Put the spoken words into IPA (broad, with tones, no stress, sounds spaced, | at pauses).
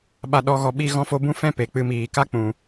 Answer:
ɓ a˨ ɗ ɔ˨ ɣ ɔ˨ ɓ i˧ ɣ ɔ̃˧ f o˧ b ũ˦ f ɛ̃˦ p e˨ k͡p ɨ˧ m iː˨ k a˦ k͡p ũ˨